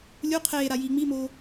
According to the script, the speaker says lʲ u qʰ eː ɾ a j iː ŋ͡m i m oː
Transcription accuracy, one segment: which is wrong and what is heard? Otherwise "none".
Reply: none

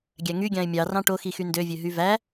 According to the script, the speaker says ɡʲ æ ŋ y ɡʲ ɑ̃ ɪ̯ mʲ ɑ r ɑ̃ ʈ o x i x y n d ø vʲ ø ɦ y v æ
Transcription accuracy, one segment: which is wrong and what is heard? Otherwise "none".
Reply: none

